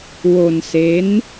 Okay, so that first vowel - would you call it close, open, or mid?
mid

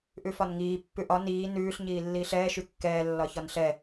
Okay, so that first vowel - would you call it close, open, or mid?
close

